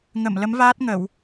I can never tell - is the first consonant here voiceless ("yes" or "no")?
no